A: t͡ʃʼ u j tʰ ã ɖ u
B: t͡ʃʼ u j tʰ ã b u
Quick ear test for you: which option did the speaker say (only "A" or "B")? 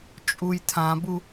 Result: B